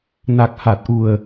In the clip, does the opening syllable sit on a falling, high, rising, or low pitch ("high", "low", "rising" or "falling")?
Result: low